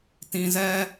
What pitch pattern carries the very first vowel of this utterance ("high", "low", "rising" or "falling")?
low